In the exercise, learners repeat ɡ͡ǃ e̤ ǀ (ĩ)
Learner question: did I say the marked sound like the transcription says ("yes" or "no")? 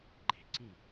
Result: yes